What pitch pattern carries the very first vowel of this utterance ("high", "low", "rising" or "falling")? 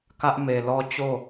high